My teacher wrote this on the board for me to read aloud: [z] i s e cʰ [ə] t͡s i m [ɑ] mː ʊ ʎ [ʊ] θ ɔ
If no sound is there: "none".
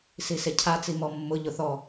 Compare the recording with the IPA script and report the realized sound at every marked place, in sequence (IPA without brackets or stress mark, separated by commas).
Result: s, a, ɔ, ʊ